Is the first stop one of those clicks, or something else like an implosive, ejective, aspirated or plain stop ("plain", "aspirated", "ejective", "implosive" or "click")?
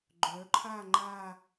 click